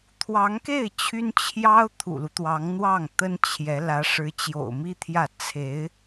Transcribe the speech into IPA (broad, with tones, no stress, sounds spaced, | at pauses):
t̪ʰ w ɑ˧˥ ŋ k e˥˩ ɪ̯ t͡ɕʰ y˥ n t͡ɕʰ j ɑ˥ ʊ̯ t̪ʰ ṵ˨˩ l u˦ t̪ w ɑ˧˥ ŋ n̪ w ɑ˥˩ ŋ t̪ ə˥ n t͡ɕʰ j ɛ˧˥ l ä˧˥ ʂ ɻ̩˧˥ t͡ɕ j o̰˨˩ ʊ̯ m i˥ t̪ʰ j ä˥˩ t͡sʰ e˧˥ ɪ̯